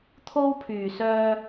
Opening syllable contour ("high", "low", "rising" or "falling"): high